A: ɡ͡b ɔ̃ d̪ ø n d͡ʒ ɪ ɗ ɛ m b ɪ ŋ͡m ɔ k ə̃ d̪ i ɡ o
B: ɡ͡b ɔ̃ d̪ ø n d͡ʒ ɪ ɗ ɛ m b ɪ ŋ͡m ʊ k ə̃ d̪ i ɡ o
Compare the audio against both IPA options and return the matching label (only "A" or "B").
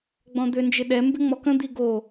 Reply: A